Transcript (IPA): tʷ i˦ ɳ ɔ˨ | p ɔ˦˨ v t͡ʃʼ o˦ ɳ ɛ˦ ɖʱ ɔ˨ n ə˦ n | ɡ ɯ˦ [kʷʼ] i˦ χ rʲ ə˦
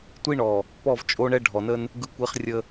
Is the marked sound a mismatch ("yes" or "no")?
yes